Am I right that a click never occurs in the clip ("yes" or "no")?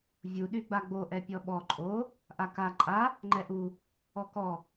no